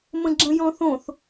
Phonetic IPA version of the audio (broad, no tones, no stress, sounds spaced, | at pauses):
m ə̃ ɡ͡ǁ ə̃ j ɔ̃ θ õ θ